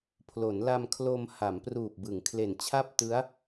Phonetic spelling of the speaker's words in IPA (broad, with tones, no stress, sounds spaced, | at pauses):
pʰ l o˩˦ n l a˧ m kʰ l o˧ m h a˩˦ m p r uː˨˩ p̚ b ɯ˩˦ ŋ kʰ l e˨˩ n t͡ɕʰ a˥˩ p̚ t ɯ˦˥ a̯